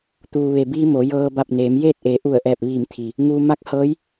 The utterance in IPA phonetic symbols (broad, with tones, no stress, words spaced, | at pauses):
t̪uː˩ʋe˩biː˧ mo˩˧jɤː˧ ba˧˩p̚neː˩˧m jeː˥˨t̚ʔe˩˧ ʔu˧˩ə̯ʔɛː˧˩p̚ʋiː˧˩mt̪ʰi˩ | ŋuː˧ ma˧˥k̚ hɤː˧˥j